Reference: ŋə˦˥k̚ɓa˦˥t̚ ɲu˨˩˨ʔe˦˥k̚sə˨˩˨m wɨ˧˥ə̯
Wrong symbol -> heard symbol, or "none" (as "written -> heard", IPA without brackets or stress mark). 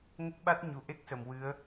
none